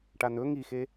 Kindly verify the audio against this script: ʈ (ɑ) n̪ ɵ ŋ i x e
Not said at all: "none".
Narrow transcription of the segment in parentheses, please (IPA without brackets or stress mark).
a